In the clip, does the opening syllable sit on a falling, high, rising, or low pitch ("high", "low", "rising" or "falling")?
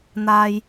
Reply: high